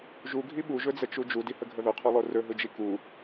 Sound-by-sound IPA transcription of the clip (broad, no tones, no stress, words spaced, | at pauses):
ʒuɡʱi ɓuʒɵd͡zət͡ʃu d͡ʒudihəɡʱə ðʊqʰolˠo rɵɦɯd͡ʒi ku